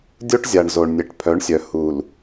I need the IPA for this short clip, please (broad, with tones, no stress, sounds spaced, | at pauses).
dʲ o˦ ʈ zʲ a˨ ɳ z o˨ ɳ nʲ e˨ ʈ pʰ œ˨˦ ɳ sʲ œ˨ h u˨ l